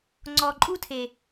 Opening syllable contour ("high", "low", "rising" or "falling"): low